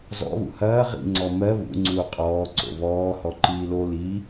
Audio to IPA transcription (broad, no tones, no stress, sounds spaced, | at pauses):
z ɔ̰ β ṵ h ɐː ʁ ḭ ŋ͡ǀ ɔ m ɜ β ṵ ŋ͡ǀ uː qʼ ɔː ǀ o̰ β ɔː h ɔ ǃ iː l o l i